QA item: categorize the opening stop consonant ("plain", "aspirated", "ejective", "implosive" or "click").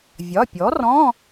plain